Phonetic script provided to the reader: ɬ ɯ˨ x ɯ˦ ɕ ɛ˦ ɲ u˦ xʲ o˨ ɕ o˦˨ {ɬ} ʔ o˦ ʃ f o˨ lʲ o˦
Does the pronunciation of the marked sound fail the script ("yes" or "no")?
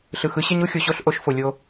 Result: no